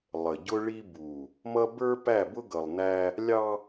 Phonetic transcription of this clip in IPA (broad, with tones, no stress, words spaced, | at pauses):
lˠə˨ɟʊ˦ ɭi˦bu˨ | mʌ˦ bə˞˦pæ˦˨bʊ˦ ɡʌ˨lˠnæ˦ | lʲɑ˦